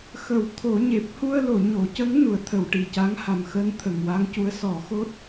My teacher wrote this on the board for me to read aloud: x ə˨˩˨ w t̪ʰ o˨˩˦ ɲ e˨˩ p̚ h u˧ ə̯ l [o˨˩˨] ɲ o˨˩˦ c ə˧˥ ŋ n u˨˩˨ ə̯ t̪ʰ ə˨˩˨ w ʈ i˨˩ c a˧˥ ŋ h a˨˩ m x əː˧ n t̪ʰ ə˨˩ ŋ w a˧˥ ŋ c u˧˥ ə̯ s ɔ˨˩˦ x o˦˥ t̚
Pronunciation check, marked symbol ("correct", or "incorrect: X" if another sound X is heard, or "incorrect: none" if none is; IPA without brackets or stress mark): correct